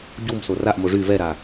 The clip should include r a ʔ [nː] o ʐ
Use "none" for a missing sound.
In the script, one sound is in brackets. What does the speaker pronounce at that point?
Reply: m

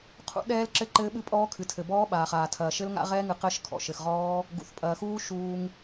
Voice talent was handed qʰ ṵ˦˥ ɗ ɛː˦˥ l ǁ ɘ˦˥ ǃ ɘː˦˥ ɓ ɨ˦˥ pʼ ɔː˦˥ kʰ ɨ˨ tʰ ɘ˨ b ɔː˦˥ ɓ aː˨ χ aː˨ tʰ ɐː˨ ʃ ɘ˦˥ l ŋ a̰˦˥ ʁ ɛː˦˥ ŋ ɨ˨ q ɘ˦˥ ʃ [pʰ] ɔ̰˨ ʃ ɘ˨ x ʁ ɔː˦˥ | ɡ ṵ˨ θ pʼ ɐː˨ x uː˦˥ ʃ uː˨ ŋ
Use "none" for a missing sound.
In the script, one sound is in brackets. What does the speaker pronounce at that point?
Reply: kʰ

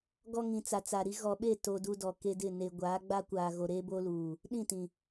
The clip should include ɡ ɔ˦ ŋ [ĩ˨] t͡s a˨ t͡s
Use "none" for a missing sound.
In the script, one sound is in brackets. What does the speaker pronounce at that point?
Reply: ĩ˨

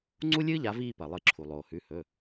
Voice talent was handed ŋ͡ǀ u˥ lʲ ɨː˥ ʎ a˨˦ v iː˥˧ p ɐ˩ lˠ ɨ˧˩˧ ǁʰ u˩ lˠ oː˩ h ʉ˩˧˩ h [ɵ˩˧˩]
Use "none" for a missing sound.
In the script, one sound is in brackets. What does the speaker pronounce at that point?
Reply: ɵ˩˧˩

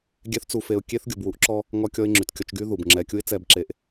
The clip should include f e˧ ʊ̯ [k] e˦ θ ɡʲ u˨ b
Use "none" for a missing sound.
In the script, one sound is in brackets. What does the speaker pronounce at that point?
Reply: kʲ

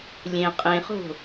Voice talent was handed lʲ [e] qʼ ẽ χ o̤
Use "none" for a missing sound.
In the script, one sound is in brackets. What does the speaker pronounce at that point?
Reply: ẽ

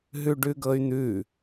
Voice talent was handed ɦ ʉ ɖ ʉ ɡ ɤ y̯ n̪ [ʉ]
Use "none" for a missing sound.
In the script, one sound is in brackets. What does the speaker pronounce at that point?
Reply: ʉ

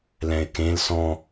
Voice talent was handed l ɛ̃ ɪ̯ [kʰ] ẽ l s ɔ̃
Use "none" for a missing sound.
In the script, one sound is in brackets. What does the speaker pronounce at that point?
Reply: k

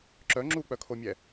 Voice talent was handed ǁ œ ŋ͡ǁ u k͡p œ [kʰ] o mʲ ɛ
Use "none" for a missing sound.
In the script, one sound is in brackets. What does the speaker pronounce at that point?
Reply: kʰ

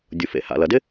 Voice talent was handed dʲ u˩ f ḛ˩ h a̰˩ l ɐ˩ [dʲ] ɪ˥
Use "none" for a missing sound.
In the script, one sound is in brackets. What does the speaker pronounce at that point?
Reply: d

